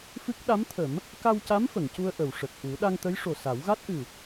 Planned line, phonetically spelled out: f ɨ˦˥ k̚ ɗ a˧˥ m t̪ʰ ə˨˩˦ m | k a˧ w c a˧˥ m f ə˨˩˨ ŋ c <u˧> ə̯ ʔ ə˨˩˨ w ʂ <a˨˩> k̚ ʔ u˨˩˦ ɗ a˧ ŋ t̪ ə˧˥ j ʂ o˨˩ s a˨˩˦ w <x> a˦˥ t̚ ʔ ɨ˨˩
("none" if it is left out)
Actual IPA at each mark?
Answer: u˧, ə˨˩, ɣ

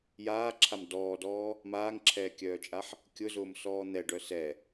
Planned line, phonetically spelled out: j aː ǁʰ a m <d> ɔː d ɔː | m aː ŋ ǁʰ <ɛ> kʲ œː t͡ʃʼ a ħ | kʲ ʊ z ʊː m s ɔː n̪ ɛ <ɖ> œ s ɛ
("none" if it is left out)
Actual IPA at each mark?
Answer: d, ɛː, ɖ

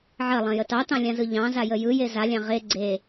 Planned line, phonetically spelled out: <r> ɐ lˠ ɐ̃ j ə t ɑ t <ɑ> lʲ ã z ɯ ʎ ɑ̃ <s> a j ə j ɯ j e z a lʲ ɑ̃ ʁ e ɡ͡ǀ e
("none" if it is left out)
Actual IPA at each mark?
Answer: ʕ, ɑ̃, z

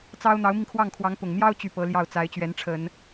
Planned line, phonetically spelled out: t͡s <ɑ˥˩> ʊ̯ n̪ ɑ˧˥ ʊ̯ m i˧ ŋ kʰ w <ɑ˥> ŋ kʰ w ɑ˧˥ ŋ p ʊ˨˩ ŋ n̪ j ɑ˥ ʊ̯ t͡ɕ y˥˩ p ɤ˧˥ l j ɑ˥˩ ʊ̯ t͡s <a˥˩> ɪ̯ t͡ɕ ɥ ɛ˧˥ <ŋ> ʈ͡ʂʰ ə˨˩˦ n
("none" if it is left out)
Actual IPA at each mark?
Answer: ɑ˥, ɑ˥˩, a˧˥, n

